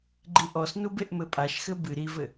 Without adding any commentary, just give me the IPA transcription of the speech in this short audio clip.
ɡ͡ǃ i ʔ ɔ s n u b e ʔ m ɘ pʼ a ʃ x ɘ b ɨ ɾ i v ɘ

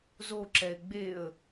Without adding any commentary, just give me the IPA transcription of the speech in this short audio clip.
z o ǁ ɛ ɪ̯ ɡ͡b e ə̯

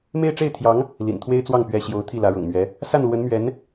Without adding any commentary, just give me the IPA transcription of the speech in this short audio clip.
m e˥˧ ɪ̯ ʈ͡ʂ e˥˩ ɪ̯ t̪ʰ j ɑ˧˥ ŋ | l ḭ˨˩ n t̪ʰ w e˥ ɪ̯ t͡s w ɑ˥˩ ŋ p ɥ ɛ˧˥ ɕ j o˧˥ ʊ̯ t̪ʰ i˥˩ l ä˧˥ ɻ ʊ̰˨˩ ŋ m ɥ ɛ˧˥ | s a˥˩ n l w ə˧˥ n m ɥ ɛ˧˥ n

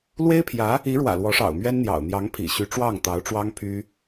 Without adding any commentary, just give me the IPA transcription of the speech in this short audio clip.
l w e˥ ɪ̯ pʰ j ä˧˥ | i˧˥ ɻ w ä̰˨˩ l w ɔ˧˥ ʂ ɑ̰˨˩ ʊ̯ m ɥ ɛ˥ n n̪ j ɑ̰˨˩ ʊ̯ n̪ j ɑ˧˥ ŋ pʰ ḭ˨˩ ɕ y˧˥ ʈ͡ʂ w ɑ˥˩ ŋ t̪ ɑ˧˥ ʊ̯ ʈ͡ʂ w ɑ˥ ŋ pʰ y˥

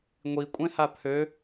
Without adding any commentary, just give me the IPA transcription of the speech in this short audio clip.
ŋʷ i kʷʼ ẽ h a pʰ ø

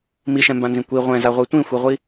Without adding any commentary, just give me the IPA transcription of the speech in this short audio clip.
m i ʃ ɛ̃ m b ã n z ĩ kʷ i ʁʷ ɛ̃ z a ʁʷ e tʷ ĩ xʷ i ʁʷ i

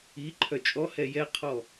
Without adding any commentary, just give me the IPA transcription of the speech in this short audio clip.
i ǃʰ œ t͡ʃʼ ɔ h ɛ j ɛ qʰ ɔ

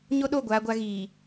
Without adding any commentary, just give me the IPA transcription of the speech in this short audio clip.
ɲ o˦ ɗ o˦˨ ɡʷ aː˦ ɡʷ a˦ ɣ iː˨

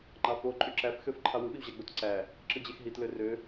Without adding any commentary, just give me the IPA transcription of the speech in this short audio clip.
ŋ͡ǃ ɑ f o ǃʼ y ǁ æ f x ø f ǃʰ ɑ w ɯ ɓ i w ʑ æ ɡ͡b o t ǀ æ | ǁ ɯ d͡ʑ e x ɦ i t l ø r ø

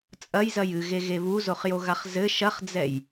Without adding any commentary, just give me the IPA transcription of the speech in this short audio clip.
t͡sʼ ɐ j z ɐ j ɨ ɣ e ɣ e β u z o χ j o ɣ a χ z ɘ ʃ ɐ χ d͡z ɛ j

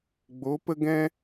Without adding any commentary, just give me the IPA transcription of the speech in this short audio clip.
ɡ͡b o˨˦ p ə˦ ɡ ɛ̃˦

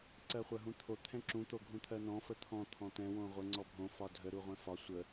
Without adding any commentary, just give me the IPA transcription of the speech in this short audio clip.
ǀ ɜ χʷ ɜ ɦ ũ t̪ʰ o t̪ʰ ɛ̃ ǁ ũ t̪ o ɡʱ ũ t̪ʰ ɜ n ɔ̃ f ə t̪ʰ ɔ̃ t̪ʰ ɔ̃ t̪ ɛ̃ w õ ʁʷ ə ŋ͡ǀ ɔ bʱ õ f ɒ dʱ ə ɾ u ʁʷ ɛ̃ f ɒ sʷ ə

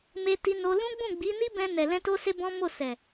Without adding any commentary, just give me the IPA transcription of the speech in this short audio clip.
m e˧ t i˧ n o˧ l ũ˦ ɡ͡b ũ˦˨ ɡ͡b i˨˦ n i˦ b ɛ̃˧ n ɛ˨ l ɛ̃˧ t o˦ s e˦ b ɔ̃˦ m o˦˨ s ɛ˨

